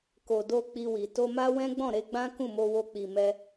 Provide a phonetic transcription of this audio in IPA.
ko˨do˧ k͡pi˧wi˨ to˧ma˦wɛ̃˦ ɡ͡bɔ̃˦˨ɾe˧ɡ͡bã˦ kũ˦˨mo˧wo˧ k͡pi˨mɛ˧

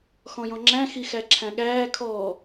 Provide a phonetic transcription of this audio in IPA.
xɔ̃jɔ̃ŋ͡ǁæ̃ xixæǁʰæ̃ɠæː kʰɔː

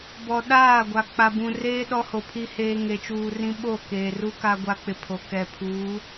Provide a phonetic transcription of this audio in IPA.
bɔ˨ɗaː˦˨ɡʷa˨ k͡pa˨bũ˨ reː˦ ɗɔ˦ho˨pʰi˦ heː˦ ŋe˨t͡ʃuː˨ rĩ˦ ɓo˦˨keː˨ru˦ ka˦ɡʷa˦k͡pɪ˨ pʰo˨ kɛ˨pʰuː˨˦

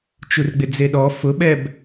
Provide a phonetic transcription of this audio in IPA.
t͡ʃurɡ͡bɪd͡zeɗɔ fʊɓɛb

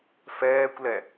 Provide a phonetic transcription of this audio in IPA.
fɛːkʷlɛ

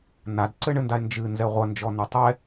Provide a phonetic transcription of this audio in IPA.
nadǀɘɳɘndae̯ nd͡ʒɨnzɛ ʁʷɐnd͡ʒɔnu tˤɛ

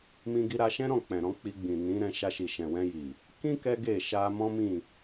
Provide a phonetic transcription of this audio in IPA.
mĩ˧ɡi˧ɾa˧ʃɛ̃˦ ɾɔ̃˦˨ k͡pɛ̃˨ɾɔ̃˧ k͡pi˧ɡ͡bĩ˨nĩ˨˦ɾɛ̃˧ ʃa˧ʃi˨ ʃɛ̃˨wɛ̃˧ji˨ | kĩ˦ kɛ˦ɡe˦˨ ʃa˧mɔ̃˦mĩ˦˨

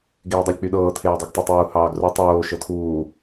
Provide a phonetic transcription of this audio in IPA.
ɡeːdˤɤlʲk͡pyɗɤː tʰeːdˤiɡtˤɑtˤuː hɑːɡru tˤoː ʃɤtʰuː

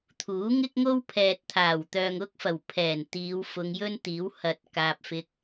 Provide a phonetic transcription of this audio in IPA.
t̪ʰuː˨˥ŋɪ˥k̚ŋo˥w pʰɛː˨t̚t̪ʰaː˨˩w t̪œː˨ŋʊ˥k̚fɐ˨˩w pʰɛː˨˩nt̪iː˨˧w fʊ˨˧ŋjɵ˥nt̪iː˨˥w hɐ˨t̚ kaː˨p̚fɪ˧k̚

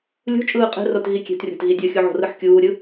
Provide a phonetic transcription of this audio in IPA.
lʲṳ t͡ʃʼɯːqʼe̤rot ɣikʲe̤trʲo̤t ɣidʲʌxʲu ʕo̤rɯħkʲuːɾʲɯ

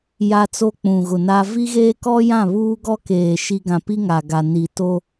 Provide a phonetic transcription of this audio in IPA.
ja˦t͡so˦ k͡pũ˨ɣʊ˨na˦ vi˦ɣeː˦kɔ˦jã˦˨ βuː˦ɡɔ˦keː˨ ʃi˦ ɡã˨pi˦ ŋa˨ɡa˨ ni˨to˦

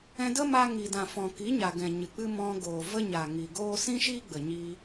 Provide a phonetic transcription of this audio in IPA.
ɛ̃˧də˦ma˧ŋi˨ dã˨fɔ̃˨ki˨˦ ɲa˨ɡɛ̃˨ɲɨ˨k͡pɨ˦ mɔ̃˧ ɡoː˨və˦ɲa˨ ŋi˨ɡoː˦ sĩ˦ʃi˦ ɡ͡bə˨ɲi˧

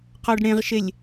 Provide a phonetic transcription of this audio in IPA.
qɔɖɽẽʁʃelʲ

